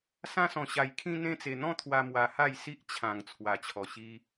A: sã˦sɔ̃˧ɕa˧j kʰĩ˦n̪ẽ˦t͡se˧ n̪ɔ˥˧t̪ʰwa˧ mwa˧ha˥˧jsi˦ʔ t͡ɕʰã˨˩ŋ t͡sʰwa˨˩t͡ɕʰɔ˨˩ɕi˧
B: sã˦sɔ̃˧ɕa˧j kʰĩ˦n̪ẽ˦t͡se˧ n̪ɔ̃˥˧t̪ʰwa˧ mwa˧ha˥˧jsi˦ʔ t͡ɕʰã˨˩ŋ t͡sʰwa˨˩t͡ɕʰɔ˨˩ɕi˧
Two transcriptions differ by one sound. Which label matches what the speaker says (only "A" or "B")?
B